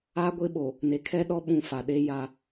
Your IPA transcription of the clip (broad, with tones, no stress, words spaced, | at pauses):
a˦ɡʷɪ˦ɓo˨ | ne˨kʰɛ˦ɗɔ˦ ɓũ˦fa˨ ɗe˦ja˦˨